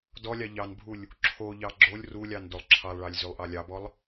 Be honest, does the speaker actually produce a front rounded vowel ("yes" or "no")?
yes